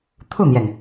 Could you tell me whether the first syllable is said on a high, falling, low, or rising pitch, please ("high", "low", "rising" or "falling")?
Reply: falling